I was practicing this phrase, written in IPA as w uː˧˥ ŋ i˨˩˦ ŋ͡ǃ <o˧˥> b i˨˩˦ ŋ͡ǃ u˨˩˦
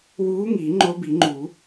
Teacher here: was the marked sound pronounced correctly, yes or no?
yes